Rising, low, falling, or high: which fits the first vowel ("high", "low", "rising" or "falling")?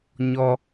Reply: low